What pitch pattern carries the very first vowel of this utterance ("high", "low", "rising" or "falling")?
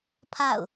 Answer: falling